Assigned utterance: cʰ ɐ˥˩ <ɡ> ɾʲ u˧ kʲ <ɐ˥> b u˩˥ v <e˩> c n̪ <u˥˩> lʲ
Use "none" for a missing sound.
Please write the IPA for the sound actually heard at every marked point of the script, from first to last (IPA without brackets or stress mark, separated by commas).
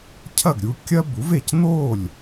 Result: ɡ, ɐ˥, e˩, o˥˩